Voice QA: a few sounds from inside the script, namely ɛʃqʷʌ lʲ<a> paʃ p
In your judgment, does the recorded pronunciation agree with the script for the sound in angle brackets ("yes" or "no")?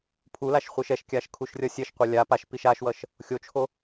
yes